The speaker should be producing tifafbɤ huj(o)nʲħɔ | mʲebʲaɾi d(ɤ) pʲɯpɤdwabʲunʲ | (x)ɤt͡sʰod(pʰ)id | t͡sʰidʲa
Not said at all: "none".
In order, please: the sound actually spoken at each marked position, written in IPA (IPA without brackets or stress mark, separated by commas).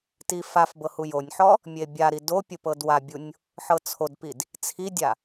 o, o, ħ, p